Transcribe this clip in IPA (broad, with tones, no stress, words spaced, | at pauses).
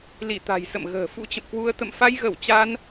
li˧˩t̪a̤˨˩jsə̰˧˨m ɣə̤ː˨˩ fṵ˧˥t͡ɕə̰˧˨mkwu˧ə̯ t̪ə̰˧˨mfa˧jɣə˧˩w t͡ɕa˧n